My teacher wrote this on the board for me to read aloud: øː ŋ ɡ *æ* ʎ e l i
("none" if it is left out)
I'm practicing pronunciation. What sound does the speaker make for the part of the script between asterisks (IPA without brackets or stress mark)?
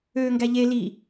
æ